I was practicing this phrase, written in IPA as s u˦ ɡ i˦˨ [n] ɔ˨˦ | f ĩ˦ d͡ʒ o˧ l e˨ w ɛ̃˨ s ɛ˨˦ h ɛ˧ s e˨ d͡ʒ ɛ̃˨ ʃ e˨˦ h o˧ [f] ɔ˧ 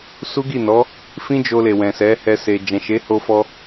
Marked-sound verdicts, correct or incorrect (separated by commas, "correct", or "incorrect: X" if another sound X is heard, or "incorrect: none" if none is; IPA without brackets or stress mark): correct, correct